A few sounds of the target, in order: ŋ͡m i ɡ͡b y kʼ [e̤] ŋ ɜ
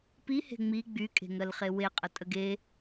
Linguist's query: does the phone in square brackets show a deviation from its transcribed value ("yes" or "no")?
no